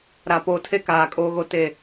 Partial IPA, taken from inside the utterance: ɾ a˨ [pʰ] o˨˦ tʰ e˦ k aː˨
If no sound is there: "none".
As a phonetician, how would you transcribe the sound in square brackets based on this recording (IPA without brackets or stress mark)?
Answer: p